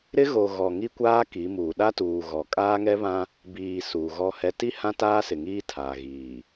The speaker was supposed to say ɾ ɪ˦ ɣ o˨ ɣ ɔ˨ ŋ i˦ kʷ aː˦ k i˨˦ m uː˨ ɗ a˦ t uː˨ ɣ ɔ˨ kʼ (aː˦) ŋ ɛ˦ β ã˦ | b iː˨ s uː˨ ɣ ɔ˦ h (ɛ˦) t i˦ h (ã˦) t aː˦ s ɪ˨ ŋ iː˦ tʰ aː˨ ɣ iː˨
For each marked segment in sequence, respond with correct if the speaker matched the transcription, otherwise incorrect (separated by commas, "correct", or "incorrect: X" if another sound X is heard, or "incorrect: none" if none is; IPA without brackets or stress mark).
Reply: correct, correct, correct